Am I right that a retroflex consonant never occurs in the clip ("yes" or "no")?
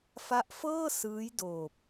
yes